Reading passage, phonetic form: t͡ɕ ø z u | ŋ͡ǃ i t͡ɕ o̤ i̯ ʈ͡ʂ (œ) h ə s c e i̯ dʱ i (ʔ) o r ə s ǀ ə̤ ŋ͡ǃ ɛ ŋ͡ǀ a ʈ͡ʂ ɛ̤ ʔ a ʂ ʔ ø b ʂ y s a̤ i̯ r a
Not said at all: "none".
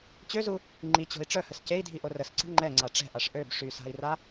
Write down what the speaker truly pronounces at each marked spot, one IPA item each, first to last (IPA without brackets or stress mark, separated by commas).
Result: œ, ʔ